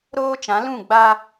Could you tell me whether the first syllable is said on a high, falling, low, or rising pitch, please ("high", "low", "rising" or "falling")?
high